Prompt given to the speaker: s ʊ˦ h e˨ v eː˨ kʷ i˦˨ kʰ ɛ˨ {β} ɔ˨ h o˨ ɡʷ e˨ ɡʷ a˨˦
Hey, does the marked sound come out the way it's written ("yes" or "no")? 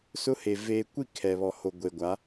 yes